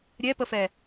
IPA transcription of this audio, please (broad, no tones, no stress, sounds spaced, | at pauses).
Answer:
ɾʲ ɛ p ə f ɛ